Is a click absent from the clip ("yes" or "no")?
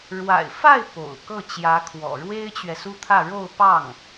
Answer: yes